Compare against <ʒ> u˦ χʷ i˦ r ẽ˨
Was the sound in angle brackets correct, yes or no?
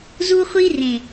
no